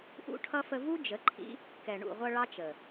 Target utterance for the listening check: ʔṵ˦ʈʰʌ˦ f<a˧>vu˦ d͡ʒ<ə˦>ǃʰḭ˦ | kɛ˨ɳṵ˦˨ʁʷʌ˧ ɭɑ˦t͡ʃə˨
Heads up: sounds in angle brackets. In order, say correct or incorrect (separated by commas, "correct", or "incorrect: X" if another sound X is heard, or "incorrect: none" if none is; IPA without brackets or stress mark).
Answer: incorrect: ə˧, incorrect: ə˨˦